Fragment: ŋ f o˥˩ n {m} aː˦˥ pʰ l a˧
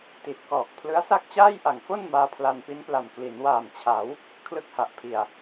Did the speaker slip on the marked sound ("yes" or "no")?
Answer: no